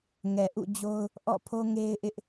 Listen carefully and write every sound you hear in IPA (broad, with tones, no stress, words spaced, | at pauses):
ŋɛ˨ʔṵ˦˨d͡ʑo˦ʊ̯ | ʔɔ̰˦˨ pʰo˦ŋe˦ɪ̯ʔɪ˦ʔ